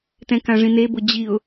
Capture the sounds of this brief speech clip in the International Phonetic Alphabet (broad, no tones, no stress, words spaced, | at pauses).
tɛ̃kãʐĩne bʊd͡ʑiʊ̯